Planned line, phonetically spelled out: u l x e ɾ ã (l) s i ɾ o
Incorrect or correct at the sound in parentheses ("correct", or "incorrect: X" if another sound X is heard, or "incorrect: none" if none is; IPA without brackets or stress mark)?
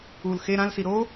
correct